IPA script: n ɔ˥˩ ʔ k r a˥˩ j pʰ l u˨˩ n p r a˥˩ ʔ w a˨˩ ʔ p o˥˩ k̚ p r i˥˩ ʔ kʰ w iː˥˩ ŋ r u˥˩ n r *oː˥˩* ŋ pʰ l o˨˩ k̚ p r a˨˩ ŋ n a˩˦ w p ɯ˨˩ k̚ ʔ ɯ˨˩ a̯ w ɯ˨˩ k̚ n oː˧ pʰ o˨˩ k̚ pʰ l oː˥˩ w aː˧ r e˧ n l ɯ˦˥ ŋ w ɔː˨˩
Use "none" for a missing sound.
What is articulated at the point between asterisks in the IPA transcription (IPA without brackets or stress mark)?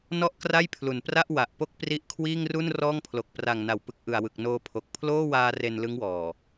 ɔː˥˩